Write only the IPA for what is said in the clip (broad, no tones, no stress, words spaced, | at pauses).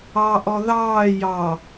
ɑʔɔ ðɑː jɑ